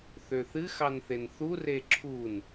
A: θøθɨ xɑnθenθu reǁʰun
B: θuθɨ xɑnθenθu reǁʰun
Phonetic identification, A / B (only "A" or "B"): A